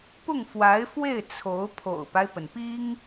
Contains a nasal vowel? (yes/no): no